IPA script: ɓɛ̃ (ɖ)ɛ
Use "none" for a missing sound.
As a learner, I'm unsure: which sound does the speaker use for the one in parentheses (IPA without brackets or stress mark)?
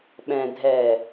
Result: dʱ